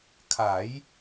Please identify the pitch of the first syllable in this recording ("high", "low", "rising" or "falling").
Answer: rising